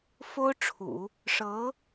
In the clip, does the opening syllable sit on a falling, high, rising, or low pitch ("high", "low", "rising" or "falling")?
high